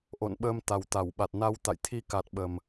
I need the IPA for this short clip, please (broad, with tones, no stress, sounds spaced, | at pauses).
ʔ o̰˧˨ n ɓ əː˧ m t̪ a˨˩ w t̪ a˧˩ w ɓ a˨˩ t̚ n a˧ w t̪ a̰˧˨ j t̪ʰ i˧ k a˨˩ t̚ ɓ ə˨˩ m